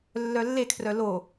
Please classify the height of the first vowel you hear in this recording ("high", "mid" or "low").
mid